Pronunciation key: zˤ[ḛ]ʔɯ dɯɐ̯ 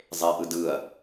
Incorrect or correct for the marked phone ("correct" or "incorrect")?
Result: incorrect